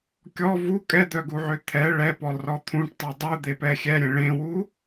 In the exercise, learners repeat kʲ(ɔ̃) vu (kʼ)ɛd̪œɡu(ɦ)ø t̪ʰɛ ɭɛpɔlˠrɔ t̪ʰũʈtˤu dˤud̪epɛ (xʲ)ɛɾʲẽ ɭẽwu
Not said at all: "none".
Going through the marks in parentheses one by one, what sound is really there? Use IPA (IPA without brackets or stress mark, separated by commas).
ɔ, kʼ, ʕ, xʲ